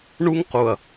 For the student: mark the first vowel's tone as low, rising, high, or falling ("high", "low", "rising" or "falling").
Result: high